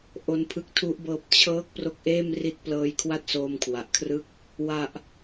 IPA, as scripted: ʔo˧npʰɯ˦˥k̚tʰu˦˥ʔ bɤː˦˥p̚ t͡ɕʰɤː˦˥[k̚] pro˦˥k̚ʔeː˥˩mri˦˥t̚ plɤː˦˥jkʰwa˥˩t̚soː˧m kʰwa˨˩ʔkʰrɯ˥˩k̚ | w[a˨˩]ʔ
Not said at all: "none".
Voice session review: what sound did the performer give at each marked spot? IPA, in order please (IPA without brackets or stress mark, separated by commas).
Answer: k̚, a˨˩